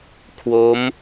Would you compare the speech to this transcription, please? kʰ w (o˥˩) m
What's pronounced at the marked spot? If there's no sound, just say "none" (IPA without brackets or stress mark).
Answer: o˦˥